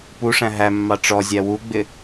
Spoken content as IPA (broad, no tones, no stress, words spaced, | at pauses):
puʂæ̃ ɦæmːɑ ʈ͡ʂɔzʲæ wuɡ͡bɪ